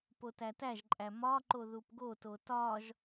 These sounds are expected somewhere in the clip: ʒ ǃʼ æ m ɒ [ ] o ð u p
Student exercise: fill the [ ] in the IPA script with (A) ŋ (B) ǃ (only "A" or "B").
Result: B